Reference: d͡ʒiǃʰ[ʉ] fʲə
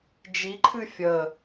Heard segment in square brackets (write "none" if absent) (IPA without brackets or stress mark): ɨ